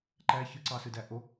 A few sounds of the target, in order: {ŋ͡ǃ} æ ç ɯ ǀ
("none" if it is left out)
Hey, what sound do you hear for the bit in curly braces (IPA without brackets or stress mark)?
ǃ